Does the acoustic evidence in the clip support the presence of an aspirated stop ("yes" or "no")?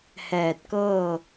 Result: no